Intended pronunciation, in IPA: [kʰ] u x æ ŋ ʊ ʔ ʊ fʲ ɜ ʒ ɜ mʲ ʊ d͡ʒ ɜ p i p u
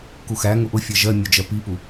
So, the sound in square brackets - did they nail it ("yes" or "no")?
no